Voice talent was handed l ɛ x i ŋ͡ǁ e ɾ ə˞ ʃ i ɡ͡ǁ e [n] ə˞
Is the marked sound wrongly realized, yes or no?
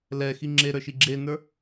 no